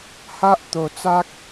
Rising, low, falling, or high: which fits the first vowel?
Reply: high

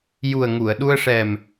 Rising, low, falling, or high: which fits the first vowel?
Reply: low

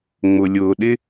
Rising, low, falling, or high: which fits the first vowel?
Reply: low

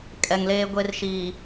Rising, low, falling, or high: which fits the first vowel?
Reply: low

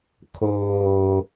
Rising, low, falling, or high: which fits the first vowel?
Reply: low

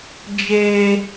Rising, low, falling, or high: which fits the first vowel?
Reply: low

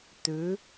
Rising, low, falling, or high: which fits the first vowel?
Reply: rising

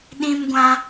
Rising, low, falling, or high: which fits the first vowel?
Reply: high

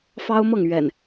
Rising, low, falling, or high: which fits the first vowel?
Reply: high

